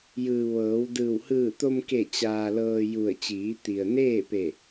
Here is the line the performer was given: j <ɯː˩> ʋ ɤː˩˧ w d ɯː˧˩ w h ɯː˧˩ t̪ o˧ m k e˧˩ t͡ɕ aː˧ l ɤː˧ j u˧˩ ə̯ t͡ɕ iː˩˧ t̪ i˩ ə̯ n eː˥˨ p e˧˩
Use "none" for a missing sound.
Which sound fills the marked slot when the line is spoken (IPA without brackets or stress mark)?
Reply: ɯː˩